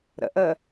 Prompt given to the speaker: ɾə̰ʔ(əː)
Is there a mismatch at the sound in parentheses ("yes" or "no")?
no